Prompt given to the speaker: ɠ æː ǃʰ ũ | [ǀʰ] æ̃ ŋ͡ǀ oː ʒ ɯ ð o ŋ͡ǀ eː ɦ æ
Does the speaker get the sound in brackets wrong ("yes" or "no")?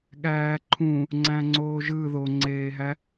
yes